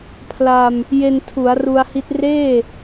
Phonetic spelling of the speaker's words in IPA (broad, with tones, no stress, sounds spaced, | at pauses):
pʰ l a˧ m | j e˧ n tʰ u˩˦ a̯ r u˧ a̯ h i˦˥ t̚ r eː˥˩